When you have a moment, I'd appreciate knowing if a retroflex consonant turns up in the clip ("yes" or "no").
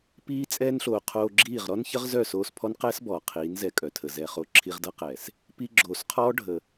yes